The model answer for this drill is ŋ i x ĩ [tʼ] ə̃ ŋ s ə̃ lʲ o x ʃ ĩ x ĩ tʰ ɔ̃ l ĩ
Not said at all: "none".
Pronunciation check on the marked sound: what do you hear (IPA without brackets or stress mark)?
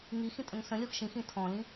tʼ